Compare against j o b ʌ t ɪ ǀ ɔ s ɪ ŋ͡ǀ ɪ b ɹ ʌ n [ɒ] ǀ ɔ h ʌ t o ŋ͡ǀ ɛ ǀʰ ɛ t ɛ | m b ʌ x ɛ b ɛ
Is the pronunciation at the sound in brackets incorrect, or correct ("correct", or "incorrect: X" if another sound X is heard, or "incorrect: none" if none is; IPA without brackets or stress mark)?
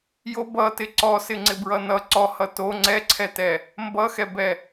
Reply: incorrect: ʌ